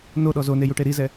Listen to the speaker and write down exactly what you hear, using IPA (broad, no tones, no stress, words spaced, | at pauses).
noɗɔ zonejuʈe ɾizɛ